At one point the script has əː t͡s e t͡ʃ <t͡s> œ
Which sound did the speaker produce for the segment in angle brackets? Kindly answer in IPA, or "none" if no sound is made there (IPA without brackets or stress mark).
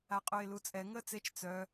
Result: t͡s